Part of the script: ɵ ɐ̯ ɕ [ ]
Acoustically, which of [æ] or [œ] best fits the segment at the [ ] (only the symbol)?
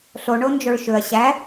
æ